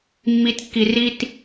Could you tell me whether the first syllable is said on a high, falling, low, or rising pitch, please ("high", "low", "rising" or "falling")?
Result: low